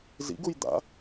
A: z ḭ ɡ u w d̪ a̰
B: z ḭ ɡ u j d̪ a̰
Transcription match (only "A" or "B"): B